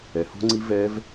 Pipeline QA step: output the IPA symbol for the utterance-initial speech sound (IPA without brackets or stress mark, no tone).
ɛ